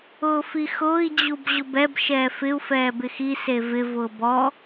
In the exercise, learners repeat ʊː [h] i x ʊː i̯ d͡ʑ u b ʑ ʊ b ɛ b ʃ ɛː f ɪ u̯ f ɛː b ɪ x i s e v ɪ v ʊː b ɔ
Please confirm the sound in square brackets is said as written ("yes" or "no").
no